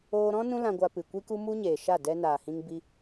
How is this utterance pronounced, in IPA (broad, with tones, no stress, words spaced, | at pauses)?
oː˧ɾɔ̃˦ nũ˦lã˧ɡʷa˧ pɨ˨kʷi˦ku˦ mu˦ɲeː˨ʃa˦˨ dɛ˧naː˨hĩ˧ŋ bi˧